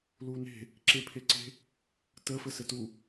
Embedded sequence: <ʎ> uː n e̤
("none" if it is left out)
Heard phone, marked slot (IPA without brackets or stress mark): l